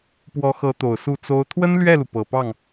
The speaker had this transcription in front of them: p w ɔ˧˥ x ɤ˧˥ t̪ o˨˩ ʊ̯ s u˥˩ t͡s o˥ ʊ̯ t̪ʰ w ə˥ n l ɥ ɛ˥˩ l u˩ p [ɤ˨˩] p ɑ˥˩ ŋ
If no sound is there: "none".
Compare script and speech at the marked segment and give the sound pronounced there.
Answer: ɤ˨˩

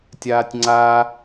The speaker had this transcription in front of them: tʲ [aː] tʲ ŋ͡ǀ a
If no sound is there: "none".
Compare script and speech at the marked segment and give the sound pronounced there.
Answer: aː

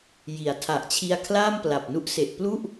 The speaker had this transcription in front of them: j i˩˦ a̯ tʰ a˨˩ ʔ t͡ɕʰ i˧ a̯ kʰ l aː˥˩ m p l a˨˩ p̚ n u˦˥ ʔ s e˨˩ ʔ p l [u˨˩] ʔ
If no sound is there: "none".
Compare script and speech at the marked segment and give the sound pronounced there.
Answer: u˥˩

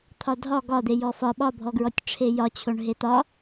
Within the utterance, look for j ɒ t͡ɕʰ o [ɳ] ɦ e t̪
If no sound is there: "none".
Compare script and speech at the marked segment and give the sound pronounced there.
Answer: ɳ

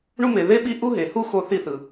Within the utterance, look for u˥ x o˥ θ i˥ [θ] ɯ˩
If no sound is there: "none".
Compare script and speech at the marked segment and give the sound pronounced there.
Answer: θ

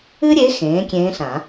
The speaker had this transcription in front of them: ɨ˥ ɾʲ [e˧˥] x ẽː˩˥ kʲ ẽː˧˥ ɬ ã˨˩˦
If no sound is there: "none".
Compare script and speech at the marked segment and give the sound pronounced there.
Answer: e˧˥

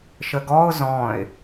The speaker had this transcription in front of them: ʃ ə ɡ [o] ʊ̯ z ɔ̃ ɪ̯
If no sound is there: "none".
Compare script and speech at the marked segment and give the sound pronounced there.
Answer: ɔ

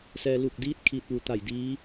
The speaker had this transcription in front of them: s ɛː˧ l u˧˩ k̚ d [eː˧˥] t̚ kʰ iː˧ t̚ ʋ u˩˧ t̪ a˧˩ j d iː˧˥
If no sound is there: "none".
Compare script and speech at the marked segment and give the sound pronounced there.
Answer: iː˧˥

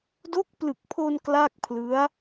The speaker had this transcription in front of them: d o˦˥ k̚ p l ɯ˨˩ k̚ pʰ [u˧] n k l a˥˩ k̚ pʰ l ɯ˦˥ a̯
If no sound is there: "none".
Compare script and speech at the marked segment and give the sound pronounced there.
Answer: o˧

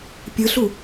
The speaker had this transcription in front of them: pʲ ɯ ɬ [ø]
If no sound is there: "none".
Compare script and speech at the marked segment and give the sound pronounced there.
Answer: u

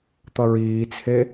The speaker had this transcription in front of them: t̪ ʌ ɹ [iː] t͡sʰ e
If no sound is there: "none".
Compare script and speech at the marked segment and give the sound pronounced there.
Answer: iː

